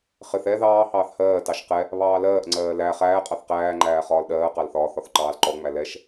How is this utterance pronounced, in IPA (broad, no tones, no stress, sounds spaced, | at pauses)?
χ ɪ θ ɛ ð ɑː h ɑː θ h ɜː t ɑ ʃ q ɛ | β ɑː l ɜː ʔ ŋ͡ǀ ɜː l æ χ æː qʼ ɑ θ q æː ŋ͡ǃ æː χ ɒː l ɗ ɜː q ɑ l θ ɒː θ ɒ θ ǃ ɑː l ǃ ɔ ŋ͡m æ l ɛ ʃ